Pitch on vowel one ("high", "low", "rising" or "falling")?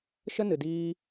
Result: high